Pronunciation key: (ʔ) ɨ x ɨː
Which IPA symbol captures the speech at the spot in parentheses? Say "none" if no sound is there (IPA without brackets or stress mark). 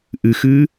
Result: ʔ